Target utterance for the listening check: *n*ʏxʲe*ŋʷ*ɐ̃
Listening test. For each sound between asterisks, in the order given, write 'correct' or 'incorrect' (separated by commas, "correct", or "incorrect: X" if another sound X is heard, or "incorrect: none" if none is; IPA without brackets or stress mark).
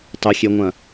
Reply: incorrect: tˤ, correct